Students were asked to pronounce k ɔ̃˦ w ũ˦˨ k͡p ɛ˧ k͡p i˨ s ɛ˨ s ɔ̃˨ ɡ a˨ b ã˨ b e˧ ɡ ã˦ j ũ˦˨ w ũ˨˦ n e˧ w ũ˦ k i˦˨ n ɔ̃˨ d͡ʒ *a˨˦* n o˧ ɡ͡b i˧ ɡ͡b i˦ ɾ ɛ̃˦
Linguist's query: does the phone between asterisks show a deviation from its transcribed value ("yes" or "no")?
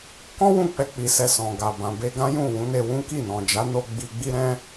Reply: no